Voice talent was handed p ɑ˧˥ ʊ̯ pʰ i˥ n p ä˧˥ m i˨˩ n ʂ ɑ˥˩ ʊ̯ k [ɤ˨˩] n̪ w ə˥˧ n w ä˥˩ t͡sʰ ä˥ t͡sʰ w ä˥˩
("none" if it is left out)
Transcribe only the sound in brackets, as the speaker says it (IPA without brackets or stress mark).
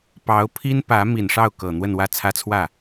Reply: ɤ˨˩